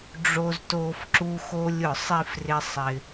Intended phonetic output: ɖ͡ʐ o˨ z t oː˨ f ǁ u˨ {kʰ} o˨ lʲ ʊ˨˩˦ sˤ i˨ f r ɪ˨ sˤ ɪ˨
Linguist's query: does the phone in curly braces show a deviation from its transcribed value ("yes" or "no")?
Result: yes